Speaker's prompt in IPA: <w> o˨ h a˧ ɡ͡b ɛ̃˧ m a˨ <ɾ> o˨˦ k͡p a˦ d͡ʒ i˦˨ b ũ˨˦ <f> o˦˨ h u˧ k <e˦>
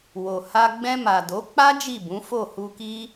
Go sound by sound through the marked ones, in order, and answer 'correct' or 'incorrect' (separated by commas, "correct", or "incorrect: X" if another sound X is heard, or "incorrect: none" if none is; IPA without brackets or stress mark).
correct, incorrect: d, correct, incorrect: i˦